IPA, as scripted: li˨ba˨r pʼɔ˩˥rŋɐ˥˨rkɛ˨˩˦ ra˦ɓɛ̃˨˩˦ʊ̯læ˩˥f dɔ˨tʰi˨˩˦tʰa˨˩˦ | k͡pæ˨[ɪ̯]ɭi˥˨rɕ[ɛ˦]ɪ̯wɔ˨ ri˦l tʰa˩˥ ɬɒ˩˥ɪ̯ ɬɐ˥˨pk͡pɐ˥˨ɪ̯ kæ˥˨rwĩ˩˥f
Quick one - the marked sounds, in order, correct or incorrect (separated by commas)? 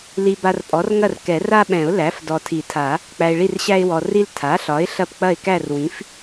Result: correct, incorrect